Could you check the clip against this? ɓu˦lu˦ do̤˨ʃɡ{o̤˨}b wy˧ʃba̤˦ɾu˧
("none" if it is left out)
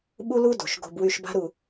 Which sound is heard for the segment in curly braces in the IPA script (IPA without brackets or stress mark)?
o̤˧